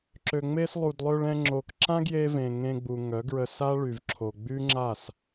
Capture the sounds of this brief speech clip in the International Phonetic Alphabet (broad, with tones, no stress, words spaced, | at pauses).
ǁø˨ŋ͡me˧slˠu˨dlˠø˧ɭ ɛ̃˧ ŋ͡ǁo˨kǁã˦ɡje˧ vẽ˨ ŋẽ˧ɡ͡bu˨ŋœ˨˦ ɡɹə˧sa˦ɭy˨vǁʰo˨ ɡ͡by˦ŋ͡ǁa˦˨s